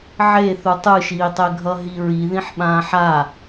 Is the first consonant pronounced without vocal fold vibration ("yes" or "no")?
no